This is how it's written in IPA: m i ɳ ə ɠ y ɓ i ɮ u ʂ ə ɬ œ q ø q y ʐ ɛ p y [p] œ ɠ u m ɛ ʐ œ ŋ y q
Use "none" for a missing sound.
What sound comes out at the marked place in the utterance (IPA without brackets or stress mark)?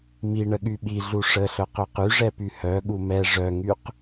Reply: h